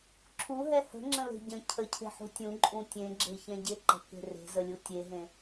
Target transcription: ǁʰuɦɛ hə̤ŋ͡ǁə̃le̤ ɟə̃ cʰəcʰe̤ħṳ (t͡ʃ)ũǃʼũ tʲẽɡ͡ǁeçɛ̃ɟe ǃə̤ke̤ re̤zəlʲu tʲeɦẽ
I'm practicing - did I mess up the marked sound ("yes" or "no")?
yes